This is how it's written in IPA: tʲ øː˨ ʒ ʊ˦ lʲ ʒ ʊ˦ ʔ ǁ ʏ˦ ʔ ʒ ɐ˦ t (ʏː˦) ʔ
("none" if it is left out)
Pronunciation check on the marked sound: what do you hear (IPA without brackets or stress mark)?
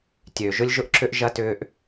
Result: ʏː˦